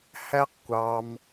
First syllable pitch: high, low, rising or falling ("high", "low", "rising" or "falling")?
high